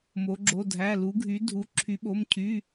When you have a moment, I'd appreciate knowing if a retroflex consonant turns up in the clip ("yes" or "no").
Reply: no